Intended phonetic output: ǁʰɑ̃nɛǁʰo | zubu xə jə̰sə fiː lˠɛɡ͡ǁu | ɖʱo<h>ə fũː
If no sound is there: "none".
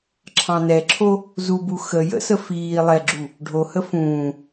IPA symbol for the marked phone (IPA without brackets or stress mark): h